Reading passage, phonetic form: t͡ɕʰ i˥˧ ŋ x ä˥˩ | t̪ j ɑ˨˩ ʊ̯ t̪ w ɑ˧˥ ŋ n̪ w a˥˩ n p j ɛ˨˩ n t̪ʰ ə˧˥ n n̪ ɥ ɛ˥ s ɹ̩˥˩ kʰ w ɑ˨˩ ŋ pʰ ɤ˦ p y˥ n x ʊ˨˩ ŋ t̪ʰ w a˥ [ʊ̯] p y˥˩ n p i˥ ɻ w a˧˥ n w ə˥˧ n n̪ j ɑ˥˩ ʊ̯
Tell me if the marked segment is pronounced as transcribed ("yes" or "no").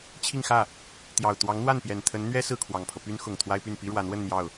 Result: no